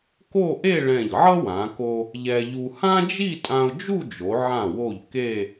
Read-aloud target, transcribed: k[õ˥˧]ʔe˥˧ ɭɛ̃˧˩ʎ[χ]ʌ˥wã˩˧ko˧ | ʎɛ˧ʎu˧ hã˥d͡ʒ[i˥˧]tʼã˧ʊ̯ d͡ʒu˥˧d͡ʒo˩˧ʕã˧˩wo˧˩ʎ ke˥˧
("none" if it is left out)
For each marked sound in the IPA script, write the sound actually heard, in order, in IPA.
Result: o˥˧, ʕ, i˥˧

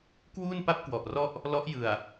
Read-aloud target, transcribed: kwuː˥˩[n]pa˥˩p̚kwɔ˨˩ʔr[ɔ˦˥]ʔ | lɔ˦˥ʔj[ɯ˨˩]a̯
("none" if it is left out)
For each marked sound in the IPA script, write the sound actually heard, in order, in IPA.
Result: n, ɔ˥˩, ɯ˨˩

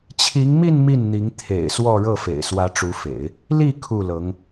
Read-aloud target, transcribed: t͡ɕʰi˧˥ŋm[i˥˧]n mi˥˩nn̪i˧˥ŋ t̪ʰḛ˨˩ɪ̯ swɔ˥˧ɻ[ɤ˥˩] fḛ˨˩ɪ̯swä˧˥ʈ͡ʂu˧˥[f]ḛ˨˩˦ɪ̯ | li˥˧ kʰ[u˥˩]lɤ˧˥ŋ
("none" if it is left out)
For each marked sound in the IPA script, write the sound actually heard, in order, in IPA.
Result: i˥˧, ɤ˥˩, f, u˥˩

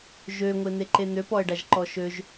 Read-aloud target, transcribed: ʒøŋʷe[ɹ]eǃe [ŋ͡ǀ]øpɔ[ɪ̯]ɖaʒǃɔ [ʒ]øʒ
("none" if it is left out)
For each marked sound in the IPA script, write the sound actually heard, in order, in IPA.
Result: n̪, n̪, ə̯, ʃ

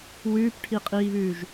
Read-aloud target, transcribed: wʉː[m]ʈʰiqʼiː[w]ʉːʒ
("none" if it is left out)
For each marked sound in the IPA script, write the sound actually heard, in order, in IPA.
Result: p, β

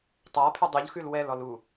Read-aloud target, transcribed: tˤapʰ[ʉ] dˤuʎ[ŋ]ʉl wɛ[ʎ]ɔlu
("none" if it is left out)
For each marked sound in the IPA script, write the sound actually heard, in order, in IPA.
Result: ʉ, x, l

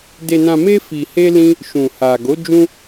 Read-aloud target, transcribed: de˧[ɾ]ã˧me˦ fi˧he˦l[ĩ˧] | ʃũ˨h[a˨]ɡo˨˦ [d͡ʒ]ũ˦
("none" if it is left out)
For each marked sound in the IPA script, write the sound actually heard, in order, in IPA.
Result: n, ĩ˦, a˨, d͡ʒ

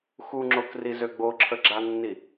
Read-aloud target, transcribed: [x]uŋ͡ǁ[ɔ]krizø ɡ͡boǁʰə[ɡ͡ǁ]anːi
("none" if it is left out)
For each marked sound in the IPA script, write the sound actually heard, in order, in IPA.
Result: x, o, ɡ͡ǁ

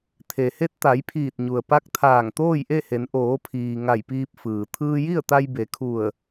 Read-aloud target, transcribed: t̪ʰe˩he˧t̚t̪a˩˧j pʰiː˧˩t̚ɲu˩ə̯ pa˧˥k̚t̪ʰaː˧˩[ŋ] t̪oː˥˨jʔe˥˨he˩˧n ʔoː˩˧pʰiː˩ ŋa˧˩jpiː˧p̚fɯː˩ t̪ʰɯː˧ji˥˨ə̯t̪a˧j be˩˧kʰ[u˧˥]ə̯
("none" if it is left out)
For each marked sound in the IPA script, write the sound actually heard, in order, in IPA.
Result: ŋ, u˧˩

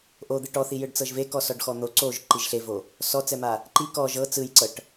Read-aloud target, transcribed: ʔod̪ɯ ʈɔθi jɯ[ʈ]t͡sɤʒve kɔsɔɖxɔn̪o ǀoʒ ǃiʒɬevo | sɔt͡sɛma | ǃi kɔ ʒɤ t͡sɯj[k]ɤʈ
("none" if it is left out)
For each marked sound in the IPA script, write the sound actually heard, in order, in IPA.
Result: ɖ, ǀ

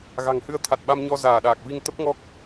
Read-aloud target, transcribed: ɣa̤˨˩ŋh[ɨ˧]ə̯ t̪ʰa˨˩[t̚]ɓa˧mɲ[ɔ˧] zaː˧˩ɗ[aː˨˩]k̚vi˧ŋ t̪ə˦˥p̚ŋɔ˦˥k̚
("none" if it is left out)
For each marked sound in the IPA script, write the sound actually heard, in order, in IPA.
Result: ɨ˨˦, t̚, ɔ˧, aː˨˩

